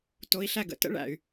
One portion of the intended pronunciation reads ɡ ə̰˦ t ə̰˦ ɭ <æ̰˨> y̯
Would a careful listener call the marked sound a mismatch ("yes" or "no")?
no